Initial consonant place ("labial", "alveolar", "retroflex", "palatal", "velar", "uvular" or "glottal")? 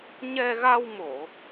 palatal